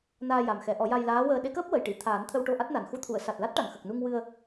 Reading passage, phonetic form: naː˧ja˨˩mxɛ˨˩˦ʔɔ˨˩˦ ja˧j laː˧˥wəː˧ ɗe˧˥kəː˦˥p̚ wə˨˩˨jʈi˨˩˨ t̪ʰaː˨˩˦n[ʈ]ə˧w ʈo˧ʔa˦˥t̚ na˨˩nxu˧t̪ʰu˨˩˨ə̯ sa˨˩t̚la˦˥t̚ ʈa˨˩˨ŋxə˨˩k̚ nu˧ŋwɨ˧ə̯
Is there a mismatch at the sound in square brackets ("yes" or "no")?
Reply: yes